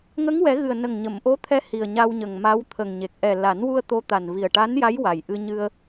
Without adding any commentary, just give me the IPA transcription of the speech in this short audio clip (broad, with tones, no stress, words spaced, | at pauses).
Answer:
ŋə˧˥ŋwɛ˨˩˦ɣɨ˨˩ə̯ nə˨˩ŋɲə˨˩˨mʔo˧˥t̪ʰɛ˧˥ hi˨˩ə̯ɲa˧wɲə˨˩ŋma˧˥w t̪ʰə˨˩ŋɲe˨˩k̚ ʔɛ˨˩la˨˩˦nwu˧ə̯ t̪o˧˥t̪a˨˩n vi˨˩ə̯ʈa˧˥nja˧˥j wa˨˩jʔɨ˧ɲɨ˧ə̯